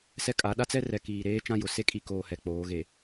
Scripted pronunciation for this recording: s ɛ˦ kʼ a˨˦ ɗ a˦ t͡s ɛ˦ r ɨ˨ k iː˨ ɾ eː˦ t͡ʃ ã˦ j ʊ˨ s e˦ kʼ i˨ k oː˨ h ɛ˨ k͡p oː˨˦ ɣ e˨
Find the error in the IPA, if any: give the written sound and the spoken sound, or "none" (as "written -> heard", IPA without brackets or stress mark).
ɨ˨ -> ɛ˨